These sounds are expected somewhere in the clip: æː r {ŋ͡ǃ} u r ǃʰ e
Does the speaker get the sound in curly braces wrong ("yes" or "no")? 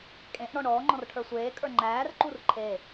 yes